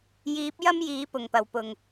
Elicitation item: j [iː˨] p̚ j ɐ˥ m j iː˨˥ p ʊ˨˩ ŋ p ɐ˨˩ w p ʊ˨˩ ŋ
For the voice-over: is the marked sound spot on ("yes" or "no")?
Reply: no